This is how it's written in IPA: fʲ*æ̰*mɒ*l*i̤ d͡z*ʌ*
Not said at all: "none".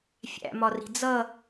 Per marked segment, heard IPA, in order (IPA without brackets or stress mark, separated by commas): æ̰, r, ʌ